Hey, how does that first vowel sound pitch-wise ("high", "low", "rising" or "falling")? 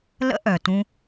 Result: high